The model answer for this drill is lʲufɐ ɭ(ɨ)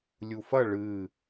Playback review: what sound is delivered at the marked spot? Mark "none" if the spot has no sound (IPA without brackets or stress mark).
ɨ